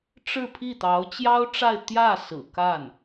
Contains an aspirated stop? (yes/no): yes